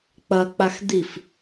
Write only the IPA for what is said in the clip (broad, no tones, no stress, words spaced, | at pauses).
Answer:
k͡pɐ k͡paxd̪if